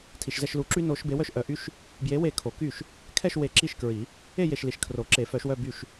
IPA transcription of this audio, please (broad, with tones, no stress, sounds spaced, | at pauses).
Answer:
tʰ i˨ ʃ z ɛ˥˧ ʃ l u˨˩˦ ǁ y˥ n o˨˥ ʃ b e˨˥ w œ˥˧ ʃ ʔ œ˨˥ ʔ y˥ ʃ | b j e˨˥ w e˨ kʰ o˨˩˦ k y˥˩ ʃ | kʰ ɛ˥˧ ʃ w e˨ ǁ i˥˩ ʃ k ɹ i˨˩˦ | e˥˧ j e˨ ʃ l i˨ ʃ kʰ r o˨˩˦ ǁ e˨˩˦ f œ˨˩˦ ʃ w œ˥˧ b y˥˩ ʃ